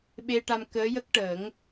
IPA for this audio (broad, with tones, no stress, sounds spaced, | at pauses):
ɓ e˧ ʈ a˧ m k əː˧˥ j ə˦˥ k̚ ʈ əː˨˩˦ ŋ